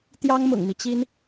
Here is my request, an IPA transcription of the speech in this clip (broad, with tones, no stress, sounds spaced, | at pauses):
t̪ j ɑ˥ ŋ m ʊ̰˨˩ ŋ m i˦ t͡ɕ i˥ n